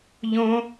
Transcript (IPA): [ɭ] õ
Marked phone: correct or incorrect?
incorrect: ʎ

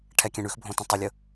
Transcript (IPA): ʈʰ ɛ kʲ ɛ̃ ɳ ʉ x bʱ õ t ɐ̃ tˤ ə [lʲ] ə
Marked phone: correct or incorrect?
correct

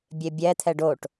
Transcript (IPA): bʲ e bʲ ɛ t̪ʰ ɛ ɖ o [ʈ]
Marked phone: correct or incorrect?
correct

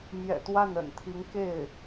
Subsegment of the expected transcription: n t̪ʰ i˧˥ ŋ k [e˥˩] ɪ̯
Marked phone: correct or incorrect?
correct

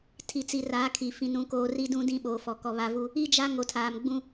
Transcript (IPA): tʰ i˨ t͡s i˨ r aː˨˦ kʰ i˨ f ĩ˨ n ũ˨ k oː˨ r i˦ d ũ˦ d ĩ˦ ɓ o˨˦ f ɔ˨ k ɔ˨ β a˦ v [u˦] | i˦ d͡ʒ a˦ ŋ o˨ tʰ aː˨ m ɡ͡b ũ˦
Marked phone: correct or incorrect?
correct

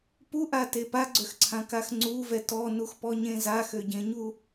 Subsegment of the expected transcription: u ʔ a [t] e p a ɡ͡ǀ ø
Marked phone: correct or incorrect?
correct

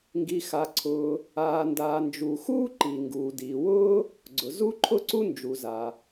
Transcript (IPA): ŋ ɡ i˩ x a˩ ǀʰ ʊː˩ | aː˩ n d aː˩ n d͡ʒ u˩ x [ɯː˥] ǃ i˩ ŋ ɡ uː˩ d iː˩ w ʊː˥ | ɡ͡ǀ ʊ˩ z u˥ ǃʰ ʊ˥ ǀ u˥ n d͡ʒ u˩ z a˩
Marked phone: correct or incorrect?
incorrect: uː˥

